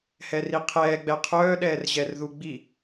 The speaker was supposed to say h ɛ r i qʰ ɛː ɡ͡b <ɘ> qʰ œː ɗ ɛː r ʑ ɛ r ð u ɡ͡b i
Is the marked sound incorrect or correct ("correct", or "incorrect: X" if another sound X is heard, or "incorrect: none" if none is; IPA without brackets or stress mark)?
incorrect: ɛ